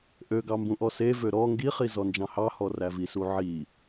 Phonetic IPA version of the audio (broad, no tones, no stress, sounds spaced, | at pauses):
ʔ ø ɡ ɑ m b ũ ʔ ɔ s e v ø ɾ ɔ ŋ ɡ i χ i z ɔ n d͡ʒ ɑ̃ h ɑ h ɔ r æ v i s u ʕ i